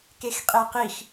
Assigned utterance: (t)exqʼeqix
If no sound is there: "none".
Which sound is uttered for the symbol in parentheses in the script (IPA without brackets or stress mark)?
k